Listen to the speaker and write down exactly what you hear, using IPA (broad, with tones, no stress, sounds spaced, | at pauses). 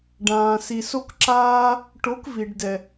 ɖ ãː˨ s i˨ s o˧ k ǁ aː˧ | ʈ o˨˦ k v i˨ ɖ d ɛ˨